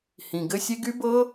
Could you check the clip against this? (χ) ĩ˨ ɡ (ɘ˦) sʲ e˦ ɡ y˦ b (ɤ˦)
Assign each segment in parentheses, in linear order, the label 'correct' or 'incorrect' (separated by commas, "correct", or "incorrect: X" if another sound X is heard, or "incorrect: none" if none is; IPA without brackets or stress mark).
incorrect: h, correct, correct